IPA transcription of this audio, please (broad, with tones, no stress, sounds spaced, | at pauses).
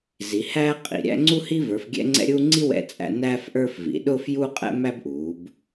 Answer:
z i˩˧ h æː˦ qʼ ḭ˩˧ ɾʲ æ̰˦ ŋ͡ǀ u˦ h i˦ v ə˞˩˧ f ɡʲ ɛ̰˦ ŋ͡ǀ ɛ̰˦ ɾʲ uː˦ ŋ͡ǀ i˦ w ɛ̰˦ t͡sʼ æ̰˦ n æː˦ f ʔ ə˞˦ f v ḭ˩˧ ɗ ʊː˦ f j uː˦ qʼ ɛ̰˦ m æ˦ b ʔ uː˩˧ b